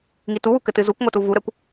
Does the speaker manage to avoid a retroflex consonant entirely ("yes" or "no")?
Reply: yes